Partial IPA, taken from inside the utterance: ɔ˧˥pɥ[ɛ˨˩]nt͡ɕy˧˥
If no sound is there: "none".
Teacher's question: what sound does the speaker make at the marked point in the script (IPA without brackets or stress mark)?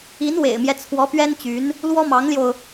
ɛ˥